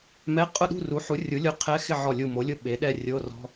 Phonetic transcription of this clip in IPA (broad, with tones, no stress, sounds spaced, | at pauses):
m ɛ˧˥˧ qʼ ʊ˥˨ ɗ ṳ˥˨ r u˩˥ ħ u˩˥ rʲ u˩˥ lʲ o˧˩ qʰ ɛ˧˥˧ x ɪ˥˨ ʕ ɔ˧˩ lʲ u˧˩ m o˩˥ lʲ ʊ˥˨ ɓ e˩˥ ɗ ɛ˥˨ rʲ o˧˥˧ r ɔ̤˧˥˧